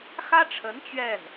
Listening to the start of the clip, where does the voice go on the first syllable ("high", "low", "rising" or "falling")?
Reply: high